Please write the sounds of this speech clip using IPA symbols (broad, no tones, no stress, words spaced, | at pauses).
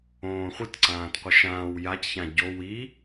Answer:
õːχʷɯt ǀãːtqʷəʃãːw jacçã ɟo wi